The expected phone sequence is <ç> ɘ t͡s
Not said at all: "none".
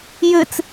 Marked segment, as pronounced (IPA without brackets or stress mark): j